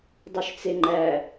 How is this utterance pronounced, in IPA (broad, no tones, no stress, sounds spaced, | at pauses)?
dˤ u ʃ t͡s e ŋ͡ǃ æ